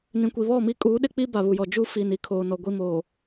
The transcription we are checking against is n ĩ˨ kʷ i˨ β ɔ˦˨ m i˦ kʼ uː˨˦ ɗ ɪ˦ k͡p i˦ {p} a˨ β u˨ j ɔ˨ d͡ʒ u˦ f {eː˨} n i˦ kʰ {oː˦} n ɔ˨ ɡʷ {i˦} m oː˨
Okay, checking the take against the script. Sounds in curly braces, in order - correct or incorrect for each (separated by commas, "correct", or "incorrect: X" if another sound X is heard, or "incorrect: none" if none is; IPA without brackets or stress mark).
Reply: incorrect: b, incorrect: iː˨, incorrect: oː˨, correct